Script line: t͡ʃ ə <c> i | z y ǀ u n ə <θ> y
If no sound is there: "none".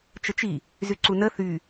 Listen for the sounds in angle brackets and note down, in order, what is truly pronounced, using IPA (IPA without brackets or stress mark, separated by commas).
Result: t͡ʃ, θ